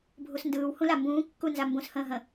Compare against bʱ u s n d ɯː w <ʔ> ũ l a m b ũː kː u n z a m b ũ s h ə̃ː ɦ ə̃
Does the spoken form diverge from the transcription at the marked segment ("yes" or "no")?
yes